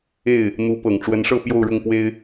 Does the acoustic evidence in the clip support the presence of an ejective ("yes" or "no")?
no